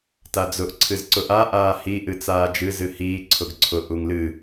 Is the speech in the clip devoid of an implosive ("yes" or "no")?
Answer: yes